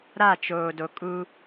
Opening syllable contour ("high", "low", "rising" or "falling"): falling